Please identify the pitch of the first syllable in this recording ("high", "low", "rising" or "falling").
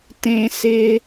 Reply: high